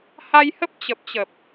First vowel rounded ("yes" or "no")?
no